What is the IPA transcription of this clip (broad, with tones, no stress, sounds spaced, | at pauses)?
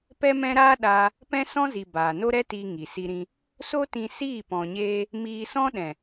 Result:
p ɛ˦ m ɛ̃˦ ɾ aː˦ ɗ aː˧ | p ɛ̃˦ s ɔ̃˦ z i˨ b aː˨ n o˦ ɾ ɛ˦ t iː˧ ŋ i˨ s i˧ ɾ ĩ˧ | s o˦ t ĩ˧ s iː˦˨ p ɔ̃˨ ɲ eː˧ | m iː˧ s ɔ̃˦ ɗ ɛ̃˨